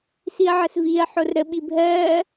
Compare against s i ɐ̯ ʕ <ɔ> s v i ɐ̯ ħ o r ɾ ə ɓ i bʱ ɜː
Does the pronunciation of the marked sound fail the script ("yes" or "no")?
yes